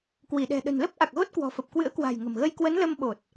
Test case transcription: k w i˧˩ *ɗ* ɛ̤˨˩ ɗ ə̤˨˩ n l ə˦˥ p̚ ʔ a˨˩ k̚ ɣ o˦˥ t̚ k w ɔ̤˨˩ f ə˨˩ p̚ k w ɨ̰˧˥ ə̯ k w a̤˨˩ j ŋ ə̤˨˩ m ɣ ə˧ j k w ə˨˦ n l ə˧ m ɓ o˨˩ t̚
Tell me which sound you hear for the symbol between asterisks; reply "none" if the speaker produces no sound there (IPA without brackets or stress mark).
ɗ